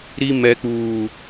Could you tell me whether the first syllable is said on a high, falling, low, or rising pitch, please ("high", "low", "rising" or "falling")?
high